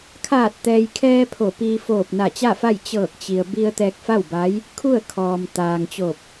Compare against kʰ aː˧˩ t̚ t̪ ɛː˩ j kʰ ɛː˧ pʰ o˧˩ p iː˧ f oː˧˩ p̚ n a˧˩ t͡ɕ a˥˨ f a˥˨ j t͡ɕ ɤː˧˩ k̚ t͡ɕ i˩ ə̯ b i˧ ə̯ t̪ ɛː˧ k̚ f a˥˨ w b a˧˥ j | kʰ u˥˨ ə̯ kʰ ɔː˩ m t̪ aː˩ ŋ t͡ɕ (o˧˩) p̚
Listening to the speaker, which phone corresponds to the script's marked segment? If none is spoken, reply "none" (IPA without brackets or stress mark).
o˧˩